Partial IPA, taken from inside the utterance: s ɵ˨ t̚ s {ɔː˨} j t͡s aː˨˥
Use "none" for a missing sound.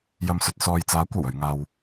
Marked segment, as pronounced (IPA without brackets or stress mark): ɔː˨